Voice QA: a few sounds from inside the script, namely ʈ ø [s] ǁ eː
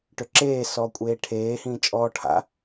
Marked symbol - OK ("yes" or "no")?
no